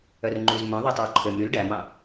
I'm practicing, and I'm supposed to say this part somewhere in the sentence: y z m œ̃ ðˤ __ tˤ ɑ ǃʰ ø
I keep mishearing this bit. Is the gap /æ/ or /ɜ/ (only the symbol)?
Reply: æ